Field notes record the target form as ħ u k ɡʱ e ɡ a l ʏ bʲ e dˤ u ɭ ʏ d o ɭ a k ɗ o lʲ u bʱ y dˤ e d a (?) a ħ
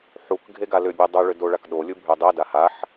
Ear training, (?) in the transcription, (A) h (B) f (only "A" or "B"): A